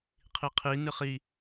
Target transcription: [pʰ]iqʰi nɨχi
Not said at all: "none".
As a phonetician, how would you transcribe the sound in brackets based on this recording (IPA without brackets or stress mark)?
qʰ